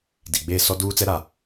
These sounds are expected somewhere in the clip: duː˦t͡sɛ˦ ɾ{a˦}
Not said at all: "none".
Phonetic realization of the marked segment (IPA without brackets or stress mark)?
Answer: a˦